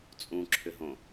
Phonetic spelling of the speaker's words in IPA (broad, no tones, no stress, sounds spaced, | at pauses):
t͡sʼ ũ ǁʰ ʏ ɦ õ